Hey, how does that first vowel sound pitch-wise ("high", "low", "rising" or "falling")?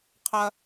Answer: high